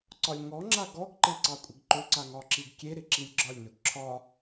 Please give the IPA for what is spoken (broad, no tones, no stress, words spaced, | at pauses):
ǀɒlʲŋɔŋ͡ǁa ɡɔɡǃe ǀɑkʷʼɪɡǃɵǀa ŋɒǁiɡkʲeɾɪ ǁilʲɡ͡ǁɒlʲnɵɡ ǁʰɒ